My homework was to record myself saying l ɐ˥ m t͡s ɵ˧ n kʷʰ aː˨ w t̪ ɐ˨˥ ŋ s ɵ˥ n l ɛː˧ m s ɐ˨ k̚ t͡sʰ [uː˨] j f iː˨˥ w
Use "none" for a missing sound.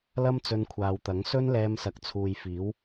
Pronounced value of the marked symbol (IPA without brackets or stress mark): uː˨